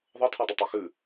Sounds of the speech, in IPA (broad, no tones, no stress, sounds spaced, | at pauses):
ðˤ ɤ tʰ ɤ dˤ ə tˤ e x ʉ